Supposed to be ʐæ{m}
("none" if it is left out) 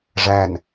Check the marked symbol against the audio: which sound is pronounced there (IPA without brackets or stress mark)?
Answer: n